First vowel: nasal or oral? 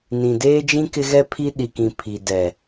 nasal